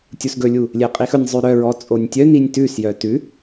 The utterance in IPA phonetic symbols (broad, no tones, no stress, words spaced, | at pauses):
tʲusɡɵlʲu | lʲeqʼixɵnʲzˤʉ ɾœɹɔ t͡sʼonʲtʲœninʲ tʉsjœ tʉ